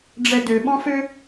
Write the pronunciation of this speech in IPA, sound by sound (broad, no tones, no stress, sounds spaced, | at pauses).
ɖ͡ʐ ɛ d ø ɓ ɔ̃ f ø